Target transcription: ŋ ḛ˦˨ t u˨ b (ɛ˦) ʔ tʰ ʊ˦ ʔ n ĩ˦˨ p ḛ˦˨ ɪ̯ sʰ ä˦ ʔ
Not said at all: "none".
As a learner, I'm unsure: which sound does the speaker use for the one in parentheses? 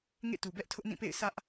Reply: ɛ˦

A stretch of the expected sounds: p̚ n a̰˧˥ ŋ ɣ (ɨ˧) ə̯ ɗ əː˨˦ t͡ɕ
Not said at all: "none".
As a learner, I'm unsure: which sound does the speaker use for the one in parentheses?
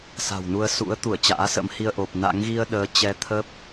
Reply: i˧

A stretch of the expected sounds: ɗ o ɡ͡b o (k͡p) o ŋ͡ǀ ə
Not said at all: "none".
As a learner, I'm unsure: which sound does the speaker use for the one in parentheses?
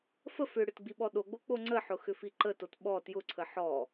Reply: k͡p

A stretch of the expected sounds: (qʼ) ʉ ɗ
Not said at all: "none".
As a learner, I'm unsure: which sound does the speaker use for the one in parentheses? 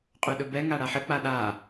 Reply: qʼ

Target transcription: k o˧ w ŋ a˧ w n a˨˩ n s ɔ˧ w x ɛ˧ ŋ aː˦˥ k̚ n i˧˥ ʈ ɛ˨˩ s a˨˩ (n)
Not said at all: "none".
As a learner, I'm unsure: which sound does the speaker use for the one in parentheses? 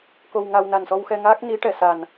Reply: n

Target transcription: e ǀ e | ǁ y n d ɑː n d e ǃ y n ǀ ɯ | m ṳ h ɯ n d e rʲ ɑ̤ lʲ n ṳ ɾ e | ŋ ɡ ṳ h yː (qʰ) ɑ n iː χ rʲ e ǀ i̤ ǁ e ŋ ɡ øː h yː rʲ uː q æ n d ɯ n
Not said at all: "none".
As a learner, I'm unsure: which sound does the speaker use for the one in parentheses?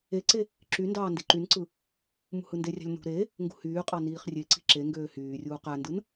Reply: qʼ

